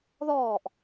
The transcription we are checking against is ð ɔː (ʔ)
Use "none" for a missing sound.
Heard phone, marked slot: ʔ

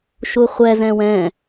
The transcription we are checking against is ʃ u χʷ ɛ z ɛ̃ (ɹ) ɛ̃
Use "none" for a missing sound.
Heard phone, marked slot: w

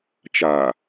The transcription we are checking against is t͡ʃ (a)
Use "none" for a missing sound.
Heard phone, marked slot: a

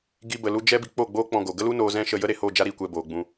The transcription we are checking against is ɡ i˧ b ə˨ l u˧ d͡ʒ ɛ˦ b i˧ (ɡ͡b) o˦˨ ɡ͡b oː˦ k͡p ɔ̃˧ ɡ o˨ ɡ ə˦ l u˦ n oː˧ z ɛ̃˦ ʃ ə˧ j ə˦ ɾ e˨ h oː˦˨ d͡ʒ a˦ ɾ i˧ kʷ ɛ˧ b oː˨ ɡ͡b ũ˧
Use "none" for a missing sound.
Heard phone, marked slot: k͡p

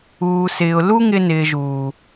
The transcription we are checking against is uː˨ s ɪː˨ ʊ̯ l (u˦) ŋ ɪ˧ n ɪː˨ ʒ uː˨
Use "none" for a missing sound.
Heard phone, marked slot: u˦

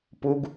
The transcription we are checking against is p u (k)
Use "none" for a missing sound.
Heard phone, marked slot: ɡ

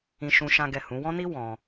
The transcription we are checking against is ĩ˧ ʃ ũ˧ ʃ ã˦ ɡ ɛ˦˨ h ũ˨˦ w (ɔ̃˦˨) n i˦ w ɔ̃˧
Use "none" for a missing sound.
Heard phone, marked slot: ɔ̃˦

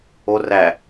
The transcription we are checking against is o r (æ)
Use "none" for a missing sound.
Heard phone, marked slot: æ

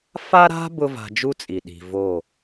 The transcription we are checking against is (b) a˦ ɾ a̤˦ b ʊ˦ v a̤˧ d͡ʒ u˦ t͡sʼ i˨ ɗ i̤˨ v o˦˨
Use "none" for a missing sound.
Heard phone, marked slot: f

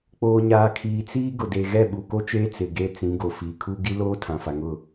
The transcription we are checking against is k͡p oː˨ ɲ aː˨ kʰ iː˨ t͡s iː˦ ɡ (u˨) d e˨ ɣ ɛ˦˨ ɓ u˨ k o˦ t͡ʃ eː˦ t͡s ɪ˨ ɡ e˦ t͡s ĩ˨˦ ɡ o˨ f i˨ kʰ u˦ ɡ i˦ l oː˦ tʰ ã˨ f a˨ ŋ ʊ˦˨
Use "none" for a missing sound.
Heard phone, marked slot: ʊ˨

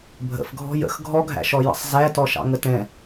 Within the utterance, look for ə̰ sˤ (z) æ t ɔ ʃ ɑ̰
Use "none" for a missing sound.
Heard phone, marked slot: z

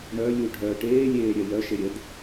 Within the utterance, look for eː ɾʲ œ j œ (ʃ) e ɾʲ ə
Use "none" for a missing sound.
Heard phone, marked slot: ʃ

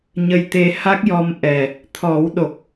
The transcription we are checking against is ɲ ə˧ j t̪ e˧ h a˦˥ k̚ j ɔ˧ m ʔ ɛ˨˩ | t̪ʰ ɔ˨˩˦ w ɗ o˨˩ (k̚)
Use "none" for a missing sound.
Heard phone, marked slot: k̚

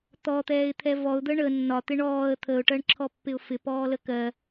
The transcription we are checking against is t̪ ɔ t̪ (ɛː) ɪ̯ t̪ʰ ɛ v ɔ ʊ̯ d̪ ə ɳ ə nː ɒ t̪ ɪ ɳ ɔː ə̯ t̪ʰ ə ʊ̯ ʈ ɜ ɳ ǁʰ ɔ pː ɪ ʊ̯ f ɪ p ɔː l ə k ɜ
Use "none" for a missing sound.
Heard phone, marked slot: ɛː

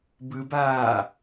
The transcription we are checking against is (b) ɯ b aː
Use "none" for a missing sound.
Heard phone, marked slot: b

